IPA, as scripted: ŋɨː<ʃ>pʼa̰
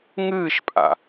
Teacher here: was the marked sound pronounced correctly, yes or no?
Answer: yes